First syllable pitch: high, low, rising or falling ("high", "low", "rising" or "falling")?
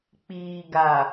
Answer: low